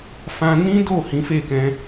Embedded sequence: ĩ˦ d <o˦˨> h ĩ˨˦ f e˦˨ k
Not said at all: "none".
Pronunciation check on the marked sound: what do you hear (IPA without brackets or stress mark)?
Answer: o˦˨